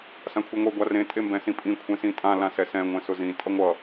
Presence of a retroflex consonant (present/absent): absent